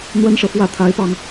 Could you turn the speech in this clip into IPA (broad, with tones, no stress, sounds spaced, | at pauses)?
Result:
n̪ w ə˥ n ʂ ɤ˨ f w ä˥˩ t̪ʰ a˧˥ ɪ̯ p ɑ˧ ŋ